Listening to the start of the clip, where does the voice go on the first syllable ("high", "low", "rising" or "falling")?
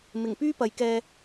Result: low